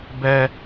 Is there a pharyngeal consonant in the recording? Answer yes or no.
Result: no